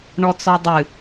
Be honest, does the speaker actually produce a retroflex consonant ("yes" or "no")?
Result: yes